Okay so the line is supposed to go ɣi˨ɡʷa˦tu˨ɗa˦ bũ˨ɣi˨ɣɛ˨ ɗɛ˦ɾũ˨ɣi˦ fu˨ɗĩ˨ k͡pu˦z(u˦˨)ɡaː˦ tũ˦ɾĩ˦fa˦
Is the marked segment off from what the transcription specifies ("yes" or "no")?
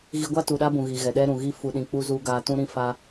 yes